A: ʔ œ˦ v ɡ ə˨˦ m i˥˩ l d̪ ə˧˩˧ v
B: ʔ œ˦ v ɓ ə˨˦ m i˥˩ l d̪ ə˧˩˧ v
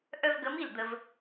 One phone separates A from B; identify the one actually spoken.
A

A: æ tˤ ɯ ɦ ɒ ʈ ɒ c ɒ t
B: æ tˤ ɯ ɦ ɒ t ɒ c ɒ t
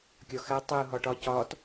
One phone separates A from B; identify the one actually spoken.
A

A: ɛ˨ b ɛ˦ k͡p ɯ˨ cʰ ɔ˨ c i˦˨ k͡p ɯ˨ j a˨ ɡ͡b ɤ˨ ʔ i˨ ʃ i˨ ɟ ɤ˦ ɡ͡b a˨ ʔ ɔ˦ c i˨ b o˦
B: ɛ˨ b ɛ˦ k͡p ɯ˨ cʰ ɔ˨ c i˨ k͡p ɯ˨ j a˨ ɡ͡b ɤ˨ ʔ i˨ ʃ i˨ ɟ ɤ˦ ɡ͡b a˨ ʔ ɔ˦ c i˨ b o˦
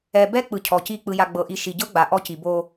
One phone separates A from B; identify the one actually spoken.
A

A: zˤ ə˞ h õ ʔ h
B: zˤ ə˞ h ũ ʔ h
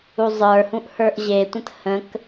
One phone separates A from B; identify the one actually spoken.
B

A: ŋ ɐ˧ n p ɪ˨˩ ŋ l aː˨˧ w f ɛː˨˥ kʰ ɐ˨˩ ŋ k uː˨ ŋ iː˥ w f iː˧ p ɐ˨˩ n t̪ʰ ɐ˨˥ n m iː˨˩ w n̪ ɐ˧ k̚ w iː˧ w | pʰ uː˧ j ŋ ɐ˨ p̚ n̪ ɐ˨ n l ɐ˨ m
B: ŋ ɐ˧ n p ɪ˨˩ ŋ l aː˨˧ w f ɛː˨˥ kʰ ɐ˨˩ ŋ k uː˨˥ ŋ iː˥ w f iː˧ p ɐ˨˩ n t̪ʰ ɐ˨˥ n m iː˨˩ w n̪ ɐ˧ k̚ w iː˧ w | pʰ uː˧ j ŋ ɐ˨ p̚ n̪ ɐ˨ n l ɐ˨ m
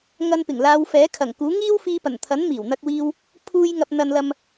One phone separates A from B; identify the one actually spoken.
B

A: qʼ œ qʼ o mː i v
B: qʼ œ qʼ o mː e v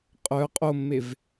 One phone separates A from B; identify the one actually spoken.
B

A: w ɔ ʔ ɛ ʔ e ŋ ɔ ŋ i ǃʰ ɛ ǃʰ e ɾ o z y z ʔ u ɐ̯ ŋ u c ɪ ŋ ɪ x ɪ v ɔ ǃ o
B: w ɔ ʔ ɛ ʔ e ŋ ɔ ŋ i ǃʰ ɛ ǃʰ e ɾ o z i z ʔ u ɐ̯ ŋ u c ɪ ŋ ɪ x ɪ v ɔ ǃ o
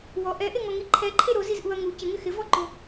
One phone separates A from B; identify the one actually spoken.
B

